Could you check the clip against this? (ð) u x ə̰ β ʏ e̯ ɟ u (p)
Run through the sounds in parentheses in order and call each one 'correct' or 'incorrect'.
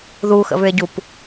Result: correct, correct

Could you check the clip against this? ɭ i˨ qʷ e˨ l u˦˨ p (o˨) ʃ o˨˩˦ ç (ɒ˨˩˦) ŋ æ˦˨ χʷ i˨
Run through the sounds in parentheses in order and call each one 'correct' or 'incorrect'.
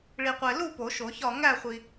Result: incorrect: o˨˩˦, incorrect: ɒ˦˨

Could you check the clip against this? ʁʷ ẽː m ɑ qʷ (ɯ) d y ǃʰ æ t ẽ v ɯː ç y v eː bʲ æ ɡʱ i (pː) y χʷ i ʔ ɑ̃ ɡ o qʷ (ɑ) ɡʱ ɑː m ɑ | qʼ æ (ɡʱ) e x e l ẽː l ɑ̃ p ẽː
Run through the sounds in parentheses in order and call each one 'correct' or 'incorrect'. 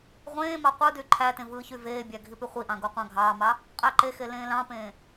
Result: correct, incorrect: p, incorrect: ɑ̃, incorrect: ǃ

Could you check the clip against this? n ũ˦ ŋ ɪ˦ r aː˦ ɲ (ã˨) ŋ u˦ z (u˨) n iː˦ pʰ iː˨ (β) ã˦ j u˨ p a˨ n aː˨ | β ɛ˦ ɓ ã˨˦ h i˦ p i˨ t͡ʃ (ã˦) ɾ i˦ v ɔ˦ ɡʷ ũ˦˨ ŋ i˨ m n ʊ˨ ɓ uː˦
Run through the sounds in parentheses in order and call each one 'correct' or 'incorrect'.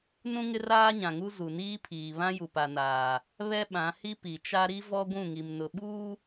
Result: correct, correct, correct, incorrect: a˦

